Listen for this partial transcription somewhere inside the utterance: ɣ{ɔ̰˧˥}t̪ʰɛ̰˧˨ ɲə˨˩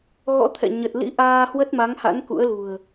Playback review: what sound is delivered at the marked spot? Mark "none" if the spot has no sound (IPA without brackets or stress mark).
ɔ̰˧˥